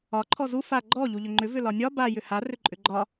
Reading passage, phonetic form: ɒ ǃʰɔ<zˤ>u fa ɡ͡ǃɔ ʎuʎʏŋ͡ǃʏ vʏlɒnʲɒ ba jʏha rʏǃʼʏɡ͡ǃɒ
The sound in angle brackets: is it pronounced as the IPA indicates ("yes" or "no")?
no